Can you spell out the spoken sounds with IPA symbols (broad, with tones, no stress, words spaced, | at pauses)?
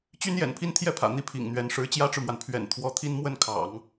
t͡ɕy˥njɛ̰˨˩npʰi˥n t̪ʰjɛ˥˩pʰä̰˨˩ n̪i˥˩pʰḭ˨˩ŋn̪ɥɛ˧˥n ʂɻ̩˧˥t͡ɕjä˥ʈ͡ʂɻ̩˨mwa˩n pʰɥɛ̰˨˩nt̪ʰwɔ˧˥t̪ʰi˥n mwə˥˩nkʰɑ̰˨˩˦ŋ